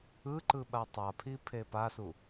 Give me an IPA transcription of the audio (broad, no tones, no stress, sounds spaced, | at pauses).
ɯ ǃ ɯ ɓ a tˤ a pʰ i pʰ e p a s u